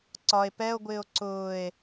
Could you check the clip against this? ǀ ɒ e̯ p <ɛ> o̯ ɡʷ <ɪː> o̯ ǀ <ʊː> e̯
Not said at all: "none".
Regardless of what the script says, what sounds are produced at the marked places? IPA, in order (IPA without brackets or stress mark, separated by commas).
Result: ɛ, ɪː, ʊː